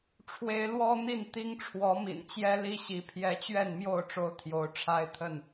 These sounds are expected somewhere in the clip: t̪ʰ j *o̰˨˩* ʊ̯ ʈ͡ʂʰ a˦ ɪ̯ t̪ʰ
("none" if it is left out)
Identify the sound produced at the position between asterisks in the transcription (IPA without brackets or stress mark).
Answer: o˨˦